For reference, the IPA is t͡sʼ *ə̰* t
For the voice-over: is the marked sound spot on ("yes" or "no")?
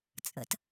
yes